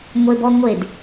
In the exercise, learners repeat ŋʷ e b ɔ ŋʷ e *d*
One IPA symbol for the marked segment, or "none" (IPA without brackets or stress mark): d